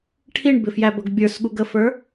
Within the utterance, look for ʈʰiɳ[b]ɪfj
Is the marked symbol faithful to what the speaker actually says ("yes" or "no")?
yes